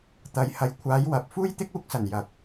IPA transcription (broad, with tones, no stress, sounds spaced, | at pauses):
t̪ ɐ˨˧ j h ɐ˨ j kʷʰ aː˨˧ j w ɐ˨ p̚ f uː˥ j t̪ ɪ˥ k̚ uː˧ k̚ s ɐ˨˩ n j ɐ˨ k̚